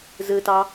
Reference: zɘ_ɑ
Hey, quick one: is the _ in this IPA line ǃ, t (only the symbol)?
t